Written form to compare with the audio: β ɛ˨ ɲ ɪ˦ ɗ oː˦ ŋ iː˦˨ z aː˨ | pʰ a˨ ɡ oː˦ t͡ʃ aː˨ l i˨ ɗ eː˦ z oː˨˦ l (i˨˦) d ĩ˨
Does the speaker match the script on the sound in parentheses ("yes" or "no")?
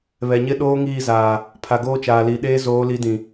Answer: yes